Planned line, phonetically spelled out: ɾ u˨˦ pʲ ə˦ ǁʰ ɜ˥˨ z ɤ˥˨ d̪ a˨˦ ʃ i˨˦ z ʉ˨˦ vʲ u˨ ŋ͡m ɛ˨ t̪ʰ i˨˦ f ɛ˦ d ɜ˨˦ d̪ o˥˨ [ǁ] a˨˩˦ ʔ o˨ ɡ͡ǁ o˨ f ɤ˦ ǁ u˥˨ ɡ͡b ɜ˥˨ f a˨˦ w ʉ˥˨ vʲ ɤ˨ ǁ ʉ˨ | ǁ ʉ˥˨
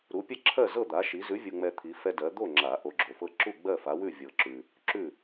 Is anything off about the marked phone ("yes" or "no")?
yes